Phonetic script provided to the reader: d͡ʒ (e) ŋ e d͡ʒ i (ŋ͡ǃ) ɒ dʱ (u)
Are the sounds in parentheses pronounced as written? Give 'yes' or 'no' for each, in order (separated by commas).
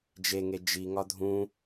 yes, no, no